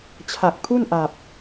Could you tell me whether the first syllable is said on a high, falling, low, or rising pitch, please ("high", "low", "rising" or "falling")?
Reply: low